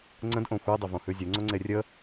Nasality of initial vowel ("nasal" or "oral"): nasal